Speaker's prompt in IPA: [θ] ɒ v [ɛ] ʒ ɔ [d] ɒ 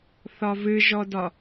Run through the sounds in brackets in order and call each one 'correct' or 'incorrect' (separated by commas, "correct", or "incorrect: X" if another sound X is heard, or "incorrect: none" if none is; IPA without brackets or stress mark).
correct, incorrect: ɨ, correct